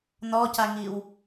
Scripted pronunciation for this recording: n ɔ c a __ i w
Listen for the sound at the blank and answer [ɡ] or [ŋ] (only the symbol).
ŋ